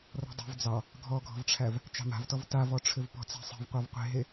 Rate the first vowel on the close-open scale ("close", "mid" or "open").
mid